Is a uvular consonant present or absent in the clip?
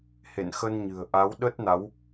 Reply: absent